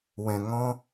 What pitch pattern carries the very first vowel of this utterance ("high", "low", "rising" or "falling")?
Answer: low